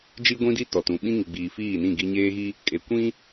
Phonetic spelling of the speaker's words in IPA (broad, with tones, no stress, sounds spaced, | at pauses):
d͡ʒ i˦ ɡʷ ĩ˦ d i˦ t ɔ˨ t ũ˨ ɓ ĩ˦ ŋ i˨ ɡ͡b iː˨ f iː˦˨ n ĩ˦˨ ɡ i˦ ɲ eː˦ ɣ i˦ | kʼ e˨ kʷ ĩ˦